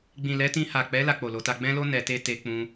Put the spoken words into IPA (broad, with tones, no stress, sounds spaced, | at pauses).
ɡ͡b ĩ˨ l ɛ˨˦ t ĩ˧ h a˨ k͡p ɛ˨˦ l a˧ k͡p o˨ l o˨˦ t a˧ ɡ͡b ɛ̃˦ l o˦ n ɛ˧ t e˦ t e˧ k͡p ũ˧